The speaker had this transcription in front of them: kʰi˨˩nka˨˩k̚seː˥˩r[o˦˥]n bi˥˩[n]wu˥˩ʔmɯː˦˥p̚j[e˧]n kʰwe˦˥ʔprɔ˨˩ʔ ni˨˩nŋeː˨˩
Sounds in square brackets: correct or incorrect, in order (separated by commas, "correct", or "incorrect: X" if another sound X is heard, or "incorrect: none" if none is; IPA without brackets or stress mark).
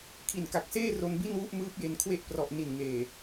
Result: incorrect: o˧, correct, correct